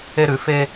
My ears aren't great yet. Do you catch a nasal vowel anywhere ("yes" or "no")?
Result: no